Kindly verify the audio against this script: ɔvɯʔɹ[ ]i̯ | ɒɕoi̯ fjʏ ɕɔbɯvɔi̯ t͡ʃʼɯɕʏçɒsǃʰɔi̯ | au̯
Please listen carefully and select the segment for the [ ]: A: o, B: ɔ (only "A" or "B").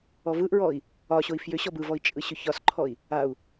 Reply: B